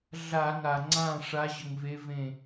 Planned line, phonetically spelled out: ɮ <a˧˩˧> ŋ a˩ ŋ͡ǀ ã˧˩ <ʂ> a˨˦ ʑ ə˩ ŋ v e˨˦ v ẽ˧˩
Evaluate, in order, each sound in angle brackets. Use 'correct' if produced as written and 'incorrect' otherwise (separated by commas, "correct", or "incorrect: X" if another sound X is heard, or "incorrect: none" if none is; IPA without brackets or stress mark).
correct, correct